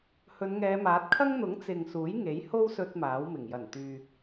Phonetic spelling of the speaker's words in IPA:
hɵ˨˧nŋɛː˨˧maː˨˥t̚ kʰɐ˥ŋn̪ʊ˨˥ŋ t͡sɪ˨ŋ suː˨˥jŋe˨˥jho˥w sɵ˥t̚maː˨˥wmɪ˨˩ŋ jɐ˨˩nt̪yː˨

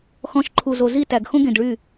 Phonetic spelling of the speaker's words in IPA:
xɔ̃˧ʃ ǃʰu˨zo˨ zi˦˨tæ˨ɡ xõ˦ɡẽ˨dɭy˦˨

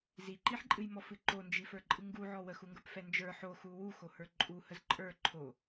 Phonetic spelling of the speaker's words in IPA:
ziǃiħǃʼɨjmɔ fɨǃond͡ʒifə˞ ǃʼɨŋɡuʕɔ wəxuŋɡə˞p fɛnd͡ʒə˞ ħo xuwu xohə˞ǃʼuhəz ǃʼə˞ ǃʰo

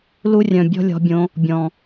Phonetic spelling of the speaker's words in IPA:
lu˦rʲœ̃˨ bʲɔ̤˦lʲɔ̤˧bʲõ˧ | bʲɔ̃˨

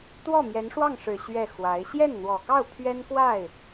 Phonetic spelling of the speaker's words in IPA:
t̪wɔ˥˩mjɛ˧˥nʂwɑ˥˩ŋʂɻ̩˨˩ ɕɥɛ˥˩xwa˧˥ɪ̯ ɕjɛ˥˩nn̪wɔ˨˩kɑ˥˩ʊ̯ pʰɥɛ˥nkwa˥˩ɪ̯

